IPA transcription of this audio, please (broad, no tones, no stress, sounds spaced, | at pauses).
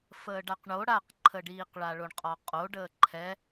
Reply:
f əː ɖ a q ɳ o ɽ a q ǃʰ ə ɖ iː q ɭ a ɭ o ɳ qʼ ɒ qʼ o ɖ əː ǃʰ ɛ